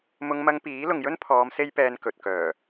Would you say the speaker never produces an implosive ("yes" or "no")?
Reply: yes